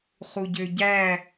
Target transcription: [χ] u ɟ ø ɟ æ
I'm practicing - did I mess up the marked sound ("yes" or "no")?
no